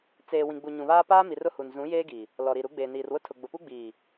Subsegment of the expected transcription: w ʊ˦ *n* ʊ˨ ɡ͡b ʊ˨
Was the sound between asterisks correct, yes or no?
no